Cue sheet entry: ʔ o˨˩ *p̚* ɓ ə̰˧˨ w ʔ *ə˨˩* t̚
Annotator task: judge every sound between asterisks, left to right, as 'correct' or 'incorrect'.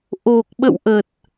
incorrect: k̚, correct

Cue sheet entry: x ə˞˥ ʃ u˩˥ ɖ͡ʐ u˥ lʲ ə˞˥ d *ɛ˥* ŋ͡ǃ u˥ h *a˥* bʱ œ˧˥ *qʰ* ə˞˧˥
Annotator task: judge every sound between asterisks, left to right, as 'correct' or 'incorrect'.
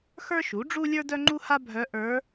incorrect: œ˥, correct, incorrect: ʔ

